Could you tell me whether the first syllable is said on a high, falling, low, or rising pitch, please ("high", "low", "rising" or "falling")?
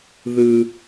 low